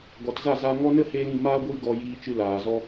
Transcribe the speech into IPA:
ɡɔ˨tza˦˨zaː˧ ŋɔ˧ nə˦heː˧l ĩ˦˨maː˦ ɡʷiː˦ɡɔ˧ jiː˧t͡ʃɨ˧laː˨zɔ˧

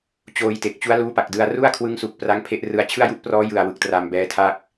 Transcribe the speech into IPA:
t͡ɕoː˧jte˨˩k̚ t͡ɕu˦˥a̯luː˦˥pa˨˩k̚dɯ˧a̯ ru˥˩a̯kʰwɯ˦˥ŋsu˨˩k̚ pra˦˥ŋpʰe˦˥ʔrɯ˧a̯ t͡ɕʰɯ˥˩a̯ju˥˩ʔprɔː˦˥ jɯ˨˩a̯ wɯ˨˩k̚ tra˧mbɛː˦˥tʰa˥˩k̚

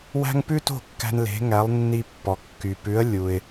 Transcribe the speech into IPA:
wæ̤˥ŋ pʉ˥to̤˥˩kːæ̤˧n le̤˩˥ŋæ˩˥lˠnːi˧ pːɔ˩kːy˩pʉ˩˥ə̯ lʲu˩ɪ̯

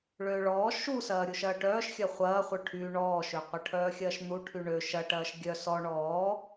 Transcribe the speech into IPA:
ɭøːɭɔː ʃusɐː ɾʲuʃɐːʈœːʃxʲɐ χʷɐːχʷœ ʈʰy ɳɔːʃøqʷɐʈʰœː xʲɐːʃn̪uʈʰy ɳø ʃɐ ʈɐːʃɡʲœ sɔ ɳɔː

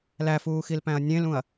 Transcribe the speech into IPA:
læfuːxilpæ̃ɐ̯ nʲẽlũɐ̯

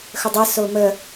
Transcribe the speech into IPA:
xədˤə somə

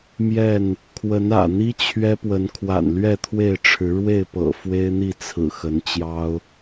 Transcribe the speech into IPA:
mjɛ˥˨n | kʰwə˨˦nä̰˨˩n̪i˦ t͡ɕʰɥɛ˦pwə˨˦n kʰwa̰˨˩nlɥɛ˥˨t̪ʰwe˥˨ɪ̯ ʈ͡ʂʰɻ̩˨˦ ɻwe˥˨ɪ̯pɤ̰˨˩ fwe˦ɪ̯n̪i˥˨ t͡sʰɹ̩˨˩xə˨˦nt͡ɕjɑ˦ʊ̯

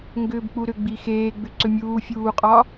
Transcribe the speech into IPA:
ŋɡʏːbk͡puɾʏ ɡ͡bixeː ɡ͡bʏǀʏmʲuː fʲuːqʼɒ

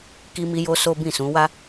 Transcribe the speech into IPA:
ki˦mi˦jo˦so˦ bĩ˦˨sũ˨˦wa˦

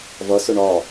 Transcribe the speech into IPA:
vʌsʊ ɳɒ

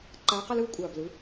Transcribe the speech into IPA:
ǃaː˧˥qʌ˥lɯ˥u̯ kʷʼaː˨˩blɯ˩˥

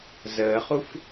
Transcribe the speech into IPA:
zəːχuf

